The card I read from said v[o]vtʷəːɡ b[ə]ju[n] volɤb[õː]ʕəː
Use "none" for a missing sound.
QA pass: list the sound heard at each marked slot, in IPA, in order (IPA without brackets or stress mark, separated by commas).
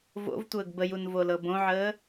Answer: o̰, ə, n, õ